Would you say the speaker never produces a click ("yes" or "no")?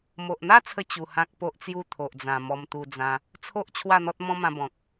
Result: yes